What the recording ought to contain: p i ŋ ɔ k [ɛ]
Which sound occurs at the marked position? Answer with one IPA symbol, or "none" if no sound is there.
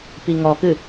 ɨ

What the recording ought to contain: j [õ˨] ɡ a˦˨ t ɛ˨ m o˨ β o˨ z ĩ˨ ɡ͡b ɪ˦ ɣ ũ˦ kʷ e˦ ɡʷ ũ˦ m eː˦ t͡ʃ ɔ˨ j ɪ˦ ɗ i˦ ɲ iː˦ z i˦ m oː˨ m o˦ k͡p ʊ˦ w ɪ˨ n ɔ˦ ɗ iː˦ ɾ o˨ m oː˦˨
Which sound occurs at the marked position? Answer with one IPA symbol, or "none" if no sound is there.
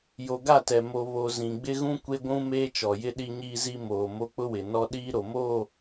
o˨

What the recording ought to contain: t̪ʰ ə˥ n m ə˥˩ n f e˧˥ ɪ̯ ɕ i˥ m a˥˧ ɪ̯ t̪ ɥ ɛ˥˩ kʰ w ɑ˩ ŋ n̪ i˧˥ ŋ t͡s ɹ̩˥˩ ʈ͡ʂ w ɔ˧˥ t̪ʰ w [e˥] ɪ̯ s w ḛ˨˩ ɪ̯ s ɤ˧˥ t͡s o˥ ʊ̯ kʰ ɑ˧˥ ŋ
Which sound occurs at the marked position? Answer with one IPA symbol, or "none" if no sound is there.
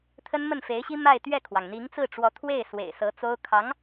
e˥˩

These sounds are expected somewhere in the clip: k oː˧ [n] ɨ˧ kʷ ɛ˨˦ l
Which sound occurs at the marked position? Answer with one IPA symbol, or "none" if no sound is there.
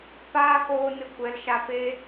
n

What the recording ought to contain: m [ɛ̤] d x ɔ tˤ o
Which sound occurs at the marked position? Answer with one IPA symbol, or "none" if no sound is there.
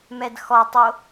ɛ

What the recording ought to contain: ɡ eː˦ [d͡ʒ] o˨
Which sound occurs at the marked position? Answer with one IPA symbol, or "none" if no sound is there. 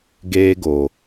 ɡ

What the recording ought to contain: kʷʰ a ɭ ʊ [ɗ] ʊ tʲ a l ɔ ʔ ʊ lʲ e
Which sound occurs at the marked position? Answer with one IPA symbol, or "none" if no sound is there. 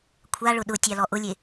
ɗ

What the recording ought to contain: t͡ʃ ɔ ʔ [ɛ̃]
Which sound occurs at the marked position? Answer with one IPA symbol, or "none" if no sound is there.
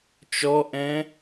ɛ̃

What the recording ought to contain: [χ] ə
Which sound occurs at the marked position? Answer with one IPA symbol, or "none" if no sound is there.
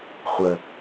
χʷ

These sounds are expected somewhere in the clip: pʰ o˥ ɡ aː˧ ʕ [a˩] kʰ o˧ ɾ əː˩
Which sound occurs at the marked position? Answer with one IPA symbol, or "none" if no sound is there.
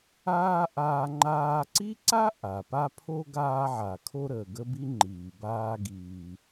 a˩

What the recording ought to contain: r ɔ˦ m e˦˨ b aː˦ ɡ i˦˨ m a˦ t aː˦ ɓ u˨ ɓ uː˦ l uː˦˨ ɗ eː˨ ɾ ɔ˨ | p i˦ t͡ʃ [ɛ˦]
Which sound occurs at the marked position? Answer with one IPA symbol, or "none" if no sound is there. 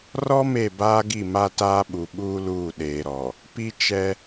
ɛ˦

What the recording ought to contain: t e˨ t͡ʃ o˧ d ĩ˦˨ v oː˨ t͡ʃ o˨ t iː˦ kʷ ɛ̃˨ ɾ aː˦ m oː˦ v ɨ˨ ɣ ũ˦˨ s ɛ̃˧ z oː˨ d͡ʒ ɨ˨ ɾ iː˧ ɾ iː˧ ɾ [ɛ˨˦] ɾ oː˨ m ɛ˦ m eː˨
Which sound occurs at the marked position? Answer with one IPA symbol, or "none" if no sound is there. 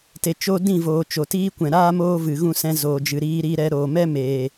ɛ˧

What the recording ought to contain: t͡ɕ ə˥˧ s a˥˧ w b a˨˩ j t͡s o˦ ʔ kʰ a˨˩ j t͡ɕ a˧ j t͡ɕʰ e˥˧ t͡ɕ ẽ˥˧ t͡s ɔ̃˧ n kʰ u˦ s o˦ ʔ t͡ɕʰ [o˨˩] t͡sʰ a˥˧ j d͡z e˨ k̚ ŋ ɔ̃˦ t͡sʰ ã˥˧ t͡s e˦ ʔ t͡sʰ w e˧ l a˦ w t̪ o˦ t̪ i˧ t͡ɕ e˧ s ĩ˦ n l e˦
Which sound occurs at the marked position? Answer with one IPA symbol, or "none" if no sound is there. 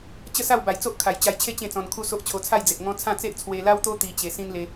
o˧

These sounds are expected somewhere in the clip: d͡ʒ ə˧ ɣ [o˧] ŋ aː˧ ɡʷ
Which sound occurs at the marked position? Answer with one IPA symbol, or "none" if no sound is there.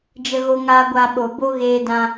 o˧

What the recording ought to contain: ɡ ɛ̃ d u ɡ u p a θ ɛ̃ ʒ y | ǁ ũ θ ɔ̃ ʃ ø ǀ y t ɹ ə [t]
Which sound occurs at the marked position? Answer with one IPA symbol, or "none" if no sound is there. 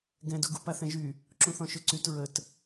t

